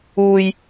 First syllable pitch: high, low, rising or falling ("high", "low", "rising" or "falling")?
low